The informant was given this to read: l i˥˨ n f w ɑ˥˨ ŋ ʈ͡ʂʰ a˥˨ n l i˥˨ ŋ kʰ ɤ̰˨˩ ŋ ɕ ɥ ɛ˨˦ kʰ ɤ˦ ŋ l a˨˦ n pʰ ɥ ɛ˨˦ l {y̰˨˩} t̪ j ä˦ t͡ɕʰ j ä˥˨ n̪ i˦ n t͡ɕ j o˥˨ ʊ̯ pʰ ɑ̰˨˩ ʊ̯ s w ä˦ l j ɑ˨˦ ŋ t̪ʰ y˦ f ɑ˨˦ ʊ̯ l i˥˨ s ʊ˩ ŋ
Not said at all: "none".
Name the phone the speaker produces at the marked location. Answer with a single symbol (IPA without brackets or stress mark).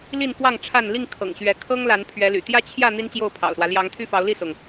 y̰˨˩